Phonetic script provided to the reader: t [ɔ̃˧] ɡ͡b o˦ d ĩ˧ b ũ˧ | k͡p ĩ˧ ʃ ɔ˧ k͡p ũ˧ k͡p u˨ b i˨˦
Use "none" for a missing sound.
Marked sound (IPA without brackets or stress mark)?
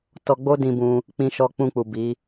ɔ˧